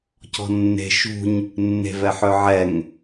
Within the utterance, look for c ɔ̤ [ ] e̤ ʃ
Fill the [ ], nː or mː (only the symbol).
nː